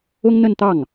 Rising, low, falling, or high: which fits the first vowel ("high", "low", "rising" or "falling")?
high